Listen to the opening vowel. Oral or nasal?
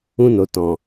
nasal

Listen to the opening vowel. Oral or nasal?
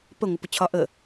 oral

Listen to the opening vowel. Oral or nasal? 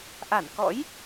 oral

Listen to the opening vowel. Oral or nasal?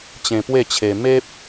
nasal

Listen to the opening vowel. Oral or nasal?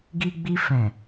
oral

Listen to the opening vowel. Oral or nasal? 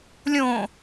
nasal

